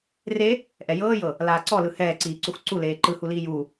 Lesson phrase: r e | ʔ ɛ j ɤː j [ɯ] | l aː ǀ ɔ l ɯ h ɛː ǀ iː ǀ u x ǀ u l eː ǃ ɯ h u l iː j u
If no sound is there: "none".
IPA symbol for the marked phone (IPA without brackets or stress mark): ɤ